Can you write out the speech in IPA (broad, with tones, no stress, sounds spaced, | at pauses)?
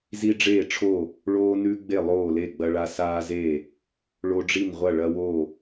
z i˦ ɖ͡ʐ eː˥˩ ʈ͡ʂʰ o˥˩ | ɭ oː˦ n ʉ˦ ɡ͡b e˥˩ lˠ oː˥˩ l e˥˩ ɡ͡b ɐ˦ ɭ a˦ s aː˦ z e˥˩ | ɭ o˦ ɖ͡ʐ i˥˩ n ʁʷ ɐ˥˩ ɭ ɐ˦ w o˥˩